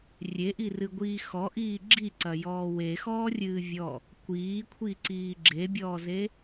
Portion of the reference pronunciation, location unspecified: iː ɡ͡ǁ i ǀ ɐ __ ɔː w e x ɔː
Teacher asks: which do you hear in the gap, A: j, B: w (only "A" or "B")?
A